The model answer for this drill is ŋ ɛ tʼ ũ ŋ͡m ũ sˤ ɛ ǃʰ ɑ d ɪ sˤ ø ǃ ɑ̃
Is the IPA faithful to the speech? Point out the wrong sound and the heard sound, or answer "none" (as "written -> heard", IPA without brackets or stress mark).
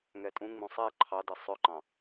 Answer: none